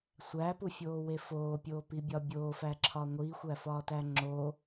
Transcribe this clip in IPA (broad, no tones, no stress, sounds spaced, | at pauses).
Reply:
sʷ æ p u fʲ oː w e f oː pʲ oː p i bʲ ɒ bʲ oː f æ ǁʰ ɒ ŋʷ i xʷ æ f ɒː t æ ŋ͡ǁ o